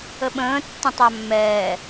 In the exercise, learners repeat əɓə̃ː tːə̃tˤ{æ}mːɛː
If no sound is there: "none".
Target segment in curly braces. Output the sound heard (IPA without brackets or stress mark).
æ